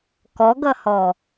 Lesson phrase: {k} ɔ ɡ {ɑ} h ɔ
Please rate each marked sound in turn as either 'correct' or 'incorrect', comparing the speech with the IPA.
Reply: correct, incorrect: ʌ

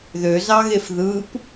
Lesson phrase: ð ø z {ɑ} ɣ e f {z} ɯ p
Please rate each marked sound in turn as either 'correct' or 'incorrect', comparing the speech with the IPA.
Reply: correct, incorrect: ð

